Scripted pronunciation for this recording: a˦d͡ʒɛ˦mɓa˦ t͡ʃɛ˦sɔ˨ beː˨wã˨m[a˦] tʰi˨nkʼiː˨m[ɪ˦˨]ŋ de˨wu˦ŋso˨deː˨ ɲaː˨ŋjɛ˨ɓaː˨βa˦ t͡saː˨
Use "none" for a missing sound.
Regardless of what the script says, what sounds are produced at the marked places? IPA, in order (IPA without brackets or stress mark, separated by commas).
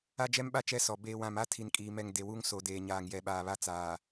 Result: a˦, ɛ˦˨